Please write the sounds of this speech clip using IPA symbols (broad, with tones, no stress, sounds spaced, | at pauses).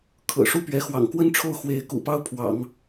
kʰ ɤ̰˨˩ ʂ u˥˩ p ɥ ɛ˧˥ x w ɑ̰˨˩ ŋ k w ə˥ n ʈ͡ʂʰ o˥˩ ʊ̯ x w e˧˥ ɪ̯ k ṵ˨˩ p ɑ˥ ʊ̯ pʰ w ɑ̰˨˩˦ ŋ